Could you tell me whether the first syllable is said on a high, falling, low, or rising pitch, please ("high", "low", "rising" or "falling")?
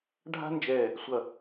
high